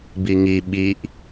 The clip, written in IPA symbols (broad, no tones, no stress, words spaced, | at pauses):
biŋi ɓiʔ